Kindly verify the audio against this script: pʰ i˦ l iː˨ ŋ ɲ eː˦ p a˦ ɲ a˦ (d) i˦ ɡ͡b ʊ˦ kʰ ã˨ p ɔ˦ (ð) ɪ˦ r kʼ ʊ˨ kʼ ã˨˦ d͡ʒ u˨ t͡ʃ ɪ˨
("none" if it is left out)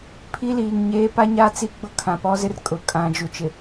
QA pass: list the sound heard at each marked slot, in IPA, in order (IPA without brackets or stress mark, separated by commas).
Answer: t͡s, z